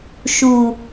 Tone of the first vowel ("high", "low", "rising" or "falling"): low